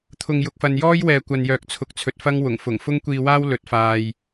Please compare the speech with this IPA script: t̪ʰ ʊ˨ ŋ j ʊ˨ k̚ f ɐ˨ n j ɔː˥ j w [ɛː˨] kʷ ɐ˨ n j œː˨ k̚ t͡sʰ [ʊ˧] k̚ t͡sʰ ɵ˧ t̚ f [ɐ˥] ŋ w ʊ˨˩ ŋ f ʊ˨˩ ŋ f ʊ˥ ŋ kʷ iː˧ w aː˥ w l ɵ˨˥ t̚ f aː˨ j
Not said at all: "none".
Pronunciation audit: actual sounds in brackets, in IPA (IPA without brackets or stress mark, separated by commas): ɛː˨, ʊ˨, ɐ˥